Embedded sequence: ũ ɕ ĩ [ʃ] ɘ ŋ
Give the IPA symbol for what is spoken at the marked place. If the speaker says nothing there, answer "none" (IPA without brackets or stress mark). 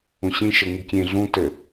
ʃ